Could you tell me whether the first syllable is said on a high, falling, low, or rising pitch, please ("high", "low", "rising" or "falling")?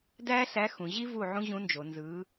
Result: high